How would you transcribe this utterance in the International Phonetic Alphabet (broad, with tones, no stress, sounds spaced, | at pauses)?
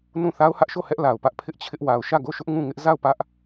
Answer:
n ũ˦˨ θ a˦ ʊ̯ h ä˦ ʔ ʃ o˦˨ h ɛ˦ ʔ l a˨ ʊ̯ p ä˦ ʔ pʰ ɪ˦ ʔ t͡ɕʰ ɪ˦ ʔ w a˨ ʊ̯ ʃ ä˦˨ ɡ o˦˨ ʃ ʊ˦ ʔ ŋ ũ˦˨ ŋ ɪ˦ ʔ z a˦˨ ʊ̯ p ä˦ ʔ